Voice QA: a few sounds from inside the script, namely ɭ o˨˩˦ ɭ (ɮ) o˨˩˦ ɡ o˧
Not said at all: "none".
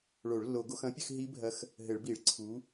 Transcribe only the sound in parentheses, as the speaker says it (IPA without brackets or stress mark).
lː